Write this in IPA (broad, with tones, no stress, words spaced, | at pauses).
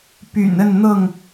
py̰˨˩nə˥˨nn̪ɤ˥˨ŋ